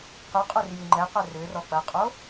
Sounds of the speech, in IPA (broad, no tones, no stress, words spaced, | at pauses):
qʏ qʼœrjyŋ͡ǃɛqœ rʏ rɔk͡pɐqʼo